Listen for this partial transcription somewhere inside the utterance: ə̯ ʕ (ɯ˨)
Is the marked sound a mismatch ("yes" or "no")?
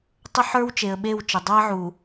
yes